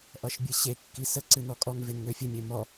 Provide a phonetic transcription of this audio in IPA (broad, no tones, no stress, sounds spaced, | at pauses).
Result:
ʔ ʌ ʃ bʲ ɨ ɕ e kː i s ə ǀ ɨ n ɔ kʼ ɔ ŋ v e n ŋ ø fʲ ɨ mʲ e m ɔ